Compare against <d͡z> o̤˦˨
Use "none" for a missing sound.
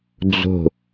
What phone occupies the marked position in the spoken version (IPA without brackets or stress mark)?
d͡z